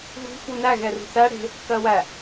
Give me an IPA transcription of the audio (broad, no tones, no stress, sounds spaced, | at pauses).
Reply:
ɣ ṳ f u n æ ɣ ɛ r ṳ θ æ ɽ e̤ | k ɜ w æ